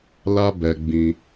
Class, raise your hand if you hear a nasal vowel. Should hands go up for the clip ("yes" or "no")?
yes